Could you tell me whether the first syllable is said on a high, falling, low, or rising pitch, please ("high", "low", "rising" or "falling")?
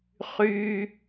high